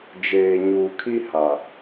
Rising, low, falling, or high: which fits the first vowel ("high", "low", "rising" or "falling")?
low